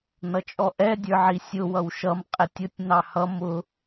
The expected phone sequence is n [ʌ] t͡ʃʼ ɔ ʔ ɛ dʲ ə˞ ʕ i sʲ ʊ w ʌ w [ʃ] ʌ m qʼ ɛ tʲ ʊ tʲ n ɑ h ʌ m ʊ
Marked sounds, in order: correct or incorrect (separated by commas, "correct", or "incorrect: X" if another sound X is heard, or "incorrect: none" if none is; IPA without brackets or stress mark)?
correct, correct